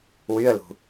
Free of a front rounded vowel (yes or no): no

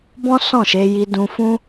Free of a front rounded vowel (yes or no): yes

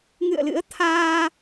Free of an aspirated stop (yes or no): no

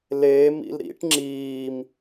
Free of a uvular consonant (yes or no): yes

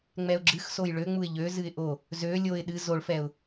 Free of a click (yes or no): no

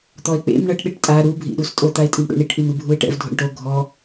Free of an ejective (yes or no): no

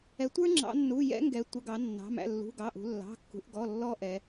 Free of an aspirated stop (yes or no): yes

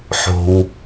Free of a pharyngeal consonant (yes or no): no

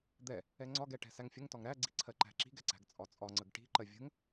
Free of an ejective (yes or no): no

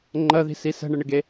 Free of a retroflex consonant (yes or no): no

